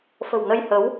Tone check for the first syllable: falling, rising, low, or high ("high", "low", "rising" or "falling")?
low